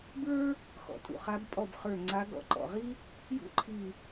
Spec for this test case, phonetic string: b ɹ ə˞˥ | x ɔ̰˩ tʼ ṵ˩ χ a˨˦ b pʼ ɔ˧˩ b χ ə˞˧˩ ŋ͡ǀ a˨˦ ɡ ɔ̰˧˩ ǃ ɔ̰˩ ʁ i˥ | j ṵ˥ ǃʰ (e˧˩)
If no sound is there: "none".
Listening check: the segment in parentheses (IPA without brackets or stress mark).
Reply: i˧˩